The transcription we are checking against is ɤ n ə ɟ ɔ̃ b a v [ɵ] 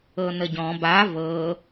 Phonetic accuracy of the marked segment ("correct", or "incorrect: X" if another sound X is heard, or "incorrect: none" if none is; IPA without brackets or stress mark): incorrect: ɤ